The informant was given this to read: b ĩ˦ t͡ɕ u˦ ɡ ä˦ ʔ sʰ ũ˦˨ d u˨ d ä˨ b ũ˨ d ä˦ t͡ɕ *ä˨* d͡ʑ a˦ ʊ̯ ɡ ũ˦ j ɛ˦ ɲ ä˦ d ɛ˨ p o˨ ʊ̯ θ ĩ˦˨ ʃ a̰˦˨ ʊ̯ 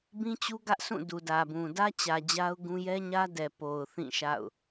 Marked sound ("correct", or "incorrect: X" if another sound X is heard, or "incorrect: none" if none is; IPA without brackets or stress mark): correct